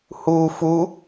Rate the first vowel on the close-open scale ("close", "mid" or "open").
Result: close